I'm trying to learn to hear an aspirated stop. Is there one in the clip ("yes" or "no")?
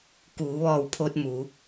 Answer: yes